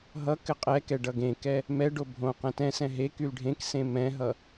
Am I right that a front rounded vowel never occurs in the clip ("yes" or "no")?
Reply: no